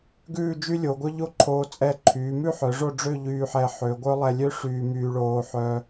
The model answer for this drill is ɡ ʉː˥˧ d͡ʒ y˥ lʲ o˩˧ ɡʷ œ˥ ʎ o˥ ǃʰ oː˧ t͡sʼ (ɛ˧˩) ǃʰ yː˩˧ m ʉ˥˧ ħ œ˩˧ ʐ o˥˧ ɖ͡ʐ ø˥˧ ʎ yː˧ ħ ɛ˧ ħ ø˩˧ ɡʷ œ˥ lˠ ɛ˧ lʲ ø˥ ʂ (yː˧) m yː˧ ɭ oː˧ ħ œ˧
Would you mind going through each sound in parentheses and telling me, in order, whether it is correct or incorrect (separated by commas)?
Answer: correct, correct